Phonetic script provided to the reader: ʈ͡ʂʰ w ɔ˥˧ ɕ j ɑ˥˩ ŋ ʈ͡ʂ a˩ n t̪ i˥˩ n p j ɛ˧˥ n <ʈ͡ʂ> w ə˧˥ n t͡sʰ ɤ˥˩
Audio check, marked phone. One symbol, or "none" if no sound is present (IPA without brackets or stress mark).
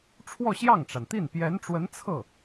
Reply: ʈ͡ʂ